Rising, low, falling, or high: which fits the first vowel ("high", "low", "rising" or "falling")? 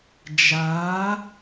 rising